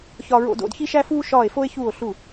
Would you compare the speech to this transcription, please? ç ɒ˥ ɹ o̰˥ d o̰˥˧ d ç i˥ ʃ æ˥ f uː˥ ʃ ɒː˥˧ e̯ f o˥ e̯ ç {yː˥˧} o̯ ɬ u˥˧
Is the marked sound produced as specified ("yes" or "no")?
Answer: no